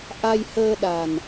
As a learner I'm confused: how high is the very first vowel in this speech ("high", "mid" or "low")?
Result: low